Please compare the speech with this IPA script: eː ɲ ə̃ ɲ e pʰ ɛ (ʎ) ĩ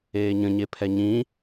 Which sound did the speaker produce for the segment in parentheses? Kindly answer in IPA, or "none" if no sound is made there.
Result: ɲ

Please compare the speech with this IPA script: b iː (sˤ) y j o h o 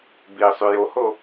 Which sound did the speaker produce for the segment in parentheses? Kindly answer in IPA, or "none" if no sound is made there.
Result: sˤ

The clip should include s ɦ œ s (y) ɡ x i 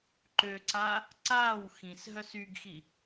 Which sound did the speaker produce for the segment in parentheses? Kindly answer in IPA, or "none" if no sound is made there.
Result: y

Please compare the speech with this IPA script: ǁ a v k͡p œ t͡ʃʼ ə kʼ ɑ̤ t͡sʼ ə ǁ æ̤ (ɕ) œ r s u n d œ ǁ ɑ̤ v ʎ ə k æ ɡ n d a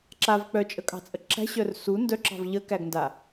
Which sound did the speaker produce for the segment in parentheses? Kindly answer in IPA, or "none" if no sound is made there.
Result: ɕ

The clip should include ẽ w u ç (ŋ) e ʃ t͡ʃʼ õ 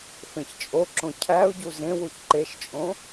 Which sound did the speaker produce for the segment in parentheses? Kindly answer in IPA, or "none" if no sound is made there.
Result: ǃ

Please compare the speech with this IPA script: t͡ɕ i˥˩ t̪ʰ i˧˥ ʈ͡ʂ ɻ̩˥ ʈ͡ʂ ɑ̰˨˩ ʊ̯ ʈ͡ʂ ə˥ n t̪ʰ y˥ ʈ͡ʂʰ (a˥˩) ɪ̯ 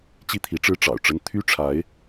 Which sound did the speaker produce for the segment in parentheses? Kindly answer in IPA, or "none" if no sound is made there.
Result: a˧˥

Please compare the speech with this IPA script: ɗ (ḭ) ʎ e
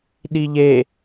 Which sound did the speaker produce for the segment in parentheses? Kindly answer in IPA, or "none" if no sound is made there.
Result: i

